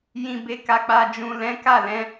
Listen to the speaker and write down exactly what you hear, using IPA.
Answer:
j ĩ˨ b e˨ k a˨ k͡p a˨ d͡ʒ ũ˨ l ɛ̃˨˦ k a˦˨ l ɛ̃˨˦

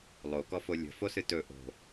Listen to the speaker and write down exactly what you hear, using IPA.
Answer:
lˠ o k ɔ f o lʲ ə̤ f o s ɨ t ɵ ʔ o̤

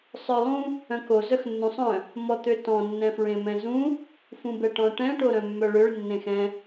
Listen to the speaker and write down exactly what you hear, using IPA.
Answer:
sˤ œ lˠ ũ | œ̃ k o z œ x nː ũ sˤ œ̃ | m ɔ t̪ ø t ɔ̃ nː ɛ̃ f ɹ ẽ m ɛ̃ z ũ | f ũ b ɛ ʈ ɔ̃ ʈ ɛ̃ ʈ o ɾ œ̃ mː œ ɭ ø ɭ nː ẽ x ɛ̃

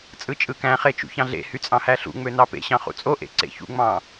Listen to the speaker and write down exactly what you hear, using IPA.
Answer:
t͡sʼ ɯ t͡ʃʼ ɯ k æ̃ χ e t͡ʃ ṵ ç ɑ̃ ɮ ḛ h y t͡sʼ ɑ̃ h æ ɬ ṵ ŋ͡m ø n ɑ p ḛ ɕ ɑ̃ χ ṵ t͡sʼ o ʔ ḛ ǀ ḛ ç ṵ ŋ͡m ɑ̃

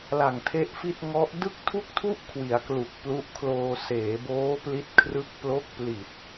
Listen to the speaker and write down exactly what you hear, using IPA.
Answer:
l a˨˩ ŋ tʰ e˦˥ ʔ f i˥˩ t̚ ŋ ɔ˦˥ ʔ d ɯ˥˩ k̚ tʰ u˥˩ k̚ tʰ u˥˩ ʔ kʰ w i˩˦ a̯ k l u˨˩ k̚ p l u˦˥ ʔ kʰ l oː˧ s eː˩˦ b oː˦˥ p l i˦˥ t̚ kʰ r ɯ˦˥ k̚ p l o˦˥ k̚ p l i˨˩ t̚

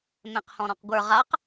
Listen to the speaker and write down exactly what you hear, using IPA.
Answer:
m ẽ q h ɔ̃ ɾ ɔ̃ q ɡʷ ə˞ ʁ a q

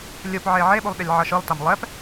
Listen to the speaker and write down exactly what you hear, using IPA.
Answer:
lʲ u p ʕ e ʕ e ɓ u lˠ ɗ e lʲ ʕ ʌ ʃ ɯ lˠ t a m lˠ ɛ p

